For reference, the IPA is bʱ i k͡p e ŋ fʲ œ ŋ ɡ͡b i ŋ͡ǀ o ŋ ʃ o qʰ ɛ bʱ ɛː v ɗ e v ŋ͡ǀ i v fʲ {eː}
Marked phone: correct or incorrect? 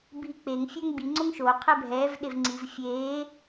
correct